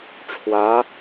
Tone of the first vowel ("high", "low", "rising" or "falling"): rising